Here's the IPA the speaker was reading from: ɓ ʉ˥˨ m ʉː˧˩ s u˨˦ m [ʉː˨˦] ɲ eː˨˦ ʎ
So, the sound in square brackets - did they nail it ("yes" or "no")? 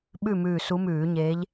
no